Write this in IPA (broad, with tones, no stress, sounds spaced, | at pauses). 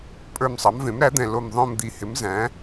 pʼ ə˞˦˨ m sˤ ɑ˩˥ m v ẽ˩˥ m ɾ æ˩˥ d̪ ɛ̃˨˩ l o˦˨ m ðˤ õ˦˨ m d̪ i˨˩ h ɪ˩˥ m z æ̃˩˥